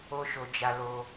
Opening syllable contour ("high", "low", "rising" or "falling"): high